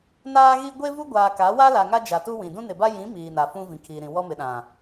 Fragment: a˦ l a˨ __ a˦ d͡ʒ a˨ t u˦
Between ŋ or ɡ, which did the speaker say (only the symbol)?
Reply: ŋ